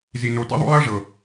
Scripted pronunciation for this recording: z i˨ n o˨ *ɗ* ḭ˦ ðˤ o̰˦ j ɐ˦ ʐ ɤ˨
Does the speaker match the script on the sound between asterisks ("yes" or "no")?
no